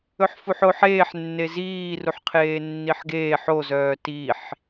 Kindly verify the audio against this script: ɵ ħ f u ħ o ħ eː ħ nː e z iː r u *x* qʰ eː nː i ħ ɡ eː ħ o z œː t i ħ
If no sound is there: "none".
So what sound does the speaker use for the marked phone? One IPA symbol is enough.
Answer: ħ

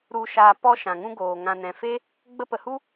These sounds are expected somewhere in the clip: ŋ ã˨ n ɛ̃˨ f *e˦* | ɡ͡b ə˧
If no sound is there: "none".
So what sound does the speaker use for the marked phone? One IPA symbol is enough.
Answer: e˦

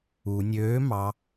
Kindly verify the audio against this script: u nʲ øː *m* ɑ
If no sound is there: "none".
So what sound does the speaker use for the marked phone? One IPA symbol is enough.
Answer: m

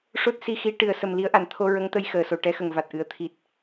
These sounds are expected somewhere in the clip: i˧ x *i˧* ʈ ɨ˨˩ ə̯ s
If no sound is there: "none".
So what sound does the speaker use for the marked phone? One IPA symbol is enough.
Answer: i˧˥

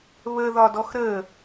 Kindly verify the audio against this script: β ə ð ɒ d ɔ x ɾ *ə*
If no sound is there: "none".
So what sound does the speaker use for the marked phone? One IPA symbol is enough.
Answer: ə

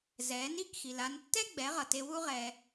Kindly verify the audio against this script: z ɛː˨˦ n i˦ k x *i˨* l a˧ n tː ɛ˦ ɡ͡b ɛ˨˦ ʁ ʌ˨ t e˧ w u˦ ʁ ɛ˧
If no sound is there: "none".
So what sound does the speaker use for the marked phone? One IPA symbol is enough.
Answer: i˨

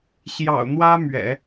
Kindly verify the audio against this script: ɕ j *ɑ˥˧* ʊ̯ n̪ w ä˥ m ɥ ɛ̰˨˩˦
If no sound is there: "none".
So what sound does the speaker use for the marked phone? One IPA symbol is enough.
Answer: ɑ̰˨˩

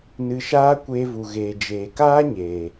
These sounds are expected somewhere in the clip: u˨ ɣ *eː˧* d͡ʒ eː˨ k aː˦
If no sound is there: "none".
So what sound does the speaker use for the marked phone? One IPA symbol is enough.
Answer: eː˨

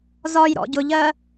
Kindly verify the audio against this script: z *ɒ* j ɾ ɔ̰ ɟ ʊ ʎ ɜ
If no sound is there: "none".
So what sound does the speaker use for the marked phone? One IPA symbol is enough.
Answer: ɒ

